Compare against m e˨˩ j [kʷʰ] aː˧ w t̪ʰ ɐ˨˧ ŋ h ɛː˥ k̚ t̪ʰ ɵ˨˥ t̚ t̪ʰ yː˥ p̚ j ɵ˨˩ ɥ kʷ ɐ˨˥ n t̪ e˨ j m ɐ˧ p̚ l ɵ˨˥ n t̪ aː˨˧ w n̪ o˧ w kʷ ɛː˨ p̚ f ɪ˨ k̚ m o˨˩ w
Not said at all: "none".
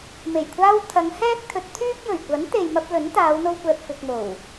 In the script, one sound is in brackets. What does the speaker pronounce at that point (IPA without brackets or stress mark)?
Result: kʷʰ